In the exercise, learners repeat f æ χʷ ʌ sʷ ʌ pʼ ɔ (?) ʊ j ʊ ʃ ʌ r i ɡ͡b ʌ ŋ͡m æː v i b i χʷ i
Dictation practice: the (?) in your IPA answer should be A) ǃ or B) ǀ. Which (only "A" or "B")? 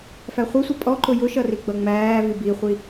A